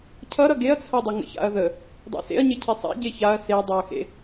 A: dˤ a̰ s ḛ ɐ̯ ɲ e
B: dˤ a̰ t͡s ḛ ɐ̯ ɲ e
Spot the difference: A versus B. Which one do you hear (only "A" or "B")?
A